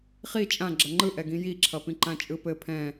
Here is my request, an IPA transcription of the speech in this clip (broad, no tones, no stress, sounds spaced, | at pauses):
χ i t͡ʃʼ ã ɡ͡ǁ ʌ ŋ͡ǃ ɯ ʔ ɛ ɡ ĩ j i ǁʰ ʌ p ĩ ǃ ã t͡ʃʼ ɯ p ɘ pʰ ɛ̃